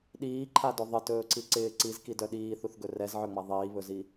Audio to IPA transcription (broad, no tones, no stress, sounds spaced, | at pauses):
ɗ iː ǃʰ a d ɵ ðˤ ɪ t ɵː ǀ i ǀ ɪː ǀ i z k i d œ ɗ iː θ u θ ɡ ɵ r ɛ z ʕ œ ŋ͡m a ðˤ iː β ɵ z i